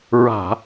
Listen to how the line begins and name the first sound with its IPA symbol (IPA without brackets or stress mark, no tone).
ɹ